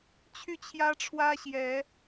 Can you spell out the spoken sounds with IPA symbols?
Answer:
t͡ɕʰ y˥˨ t͡ɕʰ j ä˦ ʈ͡ʂʰ w ä˦ ɕ j ɛ˨˦

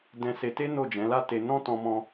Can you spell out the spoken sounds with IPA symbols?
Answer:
d ɛ̃˧ s e˧ t e˦ n o˦˨ d͡ʒ ɛ̃˨˦ l a˦ t e˧ n ɔ̃˦ t ɔ̃˧ m ɔ̃˧

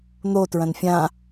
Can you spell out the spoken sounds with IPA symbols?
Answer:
n̪ o t ɹ ɐ̃ n fʲ ã

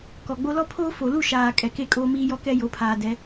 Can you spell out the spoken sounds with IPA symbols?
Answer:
k ɔ˨ ɡ͡b o˦ l ɔ˦ pʰ oː˦ f o˨ l u˦˨ ʃ aː˨ kʼ ɛ˨ k e˦˨ kʼ oː˦ m iː˦ j ɔ˦ k ɛ˦ j o˨˦ pʰ aː˨ d ɛ˨˦

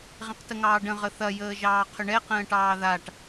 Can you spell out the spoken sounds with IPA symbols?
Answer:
ʁ ẽ q t ə ŋ ɑː ɖ ə̃ ʁ ə θ ɐ j əː ʒ ɑː qʰ ʏ ɳ ɛ q ə̃ː ʈ ɑː ð a ʈ

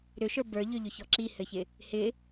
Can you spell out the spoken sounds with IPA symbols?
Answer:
ɾ ʏ ʃ ə˞ b ə˞ ʎ ʏ ʎ ʏ ç ɔ ǁ i h ɘ ç ɪ | h ɪ

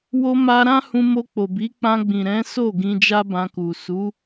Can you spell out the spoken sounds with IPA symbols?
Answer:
w o˧ m a˧ ɾ ã˦ h ũ˧ m o˧ k͡p o˨ b i˨˦ k͡p ã˧ ɡ͡b ĩ˨ ɾ ɛ̃˨˦ s o˦˨ ɡ ĩ˧ d͡ʒ a˦ b ã˧ k u˨ s u˨˦

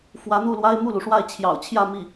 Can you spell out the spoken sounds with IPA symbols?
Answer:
f w ä˧˥ n̪ u˥˩ l w a˥ ɪ̯ m u˥˩ l u˩ ʂ w a˥˩ ɪ̯ t͡ɕʰ j ɑ̰˨˩ ʊ̯ t͡ɕʰ j ä˥˧ m i˥˩

